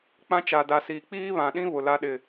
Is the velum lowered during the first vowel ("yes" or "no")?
yes